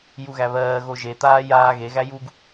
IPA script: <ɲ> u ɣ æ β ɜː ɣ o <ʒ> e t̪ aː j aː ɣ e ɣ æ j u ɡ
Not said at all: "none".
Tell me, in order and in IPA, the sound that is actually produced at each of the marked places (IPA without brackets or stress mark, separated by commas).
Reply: j, ʒ